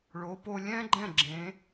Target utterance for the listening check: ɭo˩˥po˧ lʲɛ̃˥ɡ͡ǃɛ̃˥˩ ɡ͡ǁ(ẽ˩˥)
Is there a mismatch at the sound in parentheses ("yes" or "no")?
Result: no